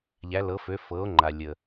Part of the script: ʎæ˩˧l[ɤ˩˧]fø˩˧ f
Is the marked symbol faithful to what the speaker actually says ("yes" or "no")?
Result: yes